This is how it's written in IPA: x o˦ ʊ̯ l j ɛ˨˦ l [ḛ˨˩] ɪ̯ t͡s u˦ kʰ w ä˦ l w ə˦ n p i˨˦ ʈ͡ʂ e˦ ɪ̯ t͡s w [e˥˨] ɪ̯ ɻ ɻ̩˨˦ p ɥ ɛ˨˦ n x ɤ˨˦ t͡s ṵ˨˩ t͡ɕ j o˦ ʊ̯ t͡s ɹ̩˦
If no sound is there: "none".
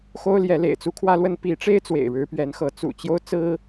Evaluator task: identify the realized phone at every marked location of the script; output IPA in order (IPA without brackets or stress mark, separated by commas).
ḛ˨˩, ḛ˨˩